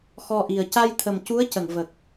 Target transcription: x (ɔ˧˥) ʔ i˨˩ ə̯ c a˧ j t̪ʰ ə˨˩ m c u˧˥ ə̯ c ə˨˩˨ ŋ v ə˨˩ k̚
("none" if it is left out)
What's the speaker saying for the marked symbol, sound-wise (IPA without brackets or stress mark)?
ɔ˧